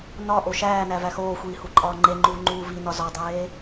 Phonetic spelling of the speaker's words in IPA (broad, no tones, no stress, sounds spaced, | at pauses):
n ɒ ʔ o ʃ æː n æ v æ x oː xʷ iː h u ǃʼ ɒː ŋ͡ǃ e ŋ͡ǃ uː ŋ͡ǃ uː v i n ɒ z ɒ dˤ eː